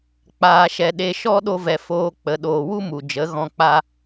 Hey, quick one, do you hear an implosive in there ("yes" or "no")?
yes